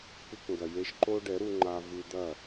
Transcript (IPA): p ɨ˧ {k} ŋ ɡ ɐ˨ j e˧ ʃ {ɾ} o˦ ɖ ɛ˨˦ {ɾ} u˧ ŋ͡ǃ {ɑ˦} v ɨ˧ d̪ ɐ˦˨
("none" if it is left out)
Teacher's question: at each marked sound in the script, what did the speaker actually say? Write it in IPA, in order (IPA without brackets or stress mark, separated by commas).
k, ǃ, ɾ, a˦